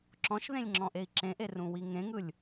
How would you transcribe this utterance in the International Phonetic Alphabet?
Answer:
ǁɔ̃ʃðẽlʲŋ͡ǁɔ̃ʔei̯ ǁẽʔerũwi ŋẽŋɯlʲ

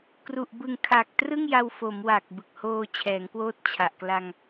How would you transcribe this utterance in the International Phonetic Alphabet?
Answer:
kru˨˩ʔbɯ˨˩ŋ kʰa˨˩k̚trɯ˥˩ŋja˧w fo˩˦mwa˨˩k̚ bɯ˨˩k̚hoː˧t͡ɕʰɛː˩˦ŋkwoː˦˥t̚ t͡ɕʰa˨˩ʔkla˧ŋ

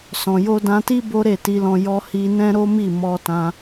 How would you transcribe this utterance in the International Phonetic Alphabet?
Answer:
sɔ̃˨jo˧dã˧ti˦ bo˦ɾe˦˨ti˧lɔ̃˧ jɔ˧hi˧nɛ̃˦ ɾo˦mi˦˨ mɔ˧tã˧

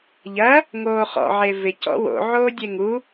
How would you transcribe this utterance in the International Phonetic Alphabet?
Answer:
ʎɐ | ŋoːχɔ̰ ʕevɪ cɔ̰wo̰ ʕoːdʲeŋu

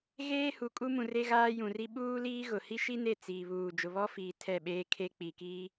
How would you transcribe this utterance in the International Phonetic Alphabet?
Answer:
ɣeː˦hu˨kʼu˦mũ˨ re˦ɣaː˦jũ˨ri˦ ɓuː˦liː˦ ɣʊ˨ hi˦ʃi˦ne˦˨ t͡siː˨βuː˨ d͡ʒʊ˨βɔ˦fiː˨ tʰɛ˦˨ɓeː˦kʰe˦ k͡pi˨kiː˦

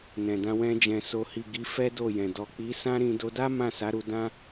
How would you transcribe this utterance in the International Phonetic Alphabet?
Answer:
nɛ̃˨dã˧wɛ̃˧ d͡ʒɛ̃˨ so˨hi˨ ɡi˨˦ fɛ˦do˦˨jɛ̃˨ dɔ˨k͡pi˨˦sã˦ɾĩ˧ do˧da˦ mã˦˨sa˨˦ɾu˧ dã˦

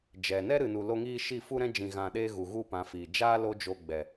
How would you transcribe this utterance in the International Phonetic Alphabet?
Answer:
d͡ʒɛ˨ nɛ˦ɾɨ˨nu˨lo˧ ŋiː˧ ʃi˦˨fu˦ɾɛ̃˦ d͡ʒĩ˨ɣã˨ɗeː˧ ɣu˨ ɣu˦pã˨˦fiː˨ d͡ʒaː˦ lo˦d͡ʒo˧ ɡ͡bɛ˨

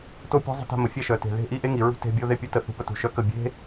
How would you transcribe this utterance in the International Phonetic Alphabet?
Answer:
to˥˩pʲa̤˦˥zˤə̤˧˥˧ ta̤˦˥mə˩˧ fʲɛ˥˩ʃœ˨˩te̤˨˩ ðe̤˦˥ ʔi˧˥˧ʔe˦˥ ŋi˨˩ɹṳ˧˥˧ te̤˧˥˧bʲo˦˥ ðe˥˩pʲu˥˩ tə˥˩θṳ˧˥˧pə˦˥ tṳ˨˩ʃœ˧˥˧kə˥˩ bʲe̤˦˥

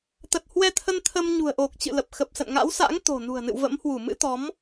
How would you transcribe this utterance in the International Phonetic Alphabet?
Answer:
t̪ə˨˩t̚hwɛ˧t̪ʰə˧n t̪ʰə˧m ɲṳ˨˩ə̯ʔo˨˩k̚ t͡ɕɨ̰˧˨lə˨˩p̚ xə˨˩p̚sə̰˧˨nŋa̰˧˥wsa̰˧˥ŋ t̪o̤˨˩nṳ˨˩ə̯nɨ̰˧˨w və̰˧˥mhwu˧˩ mɨ̰˧˥t̪ɔ˨˦m

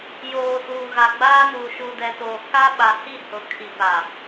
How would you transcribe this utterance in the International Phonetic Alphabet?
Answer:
joː˨suː˨ ɣa˨ɡ͡baː˦nuː˨ ʃu˨dɛ˨toː˨ ka˦ ɓa˨hi˦˨hʊ˨ kʰi˨pa˨

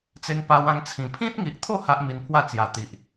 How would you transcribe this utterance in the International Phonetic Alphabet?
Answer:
t͡se˧ŋpa˧wã˧ŋt͡sʰĩ˨˩ pʰĩ˦t̚ŋi˨ʔt̪ʰo˥˧ ha˦ʔmi˧npʰwa˥˧ t͡sja˨˩t̪i˨ʔ

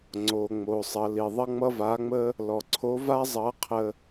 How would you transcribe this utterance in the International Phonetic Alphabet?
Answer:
ŋ͡ǀo˩ŋ͡mo˩ sˤʌ˩˧li˩ ðˤʌ˥ŋ͡mʌ˥va˧˥ŋ͡mə˥ | lɔ˩ǀʰo˧˥ va˥ zˤʌ˧˥qʰə˧

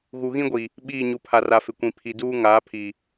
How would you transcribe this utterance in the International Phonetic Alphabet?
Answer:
ɣu˨ɣĩ˦ɡʷi˨ | ɓiː˦˨ɲu˨pʰa˨ra˨ fɪ˨kʷĩ˨ pʰi˨duː˦ ŋaː˨˦ pʰi˨

